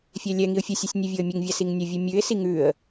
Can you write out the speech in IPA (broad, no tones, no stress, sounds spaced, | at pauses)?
fʲ ɛ lʲ ɛ ŋ i ʊ̯ fʲ ə sʲ u sʲ nʲ ɛ vʲ o ə̯ mʲ ʉ ŋ vʲ a s i ŋ nʲ ə vʲ ʉ mʲ ʉ ɪ̯ s i ŋ ʉ ə̯